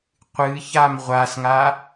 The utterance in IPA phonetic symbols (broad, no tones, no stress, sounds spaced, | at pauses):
qʷ ɨ ç a m ʁʷ a s ŋ a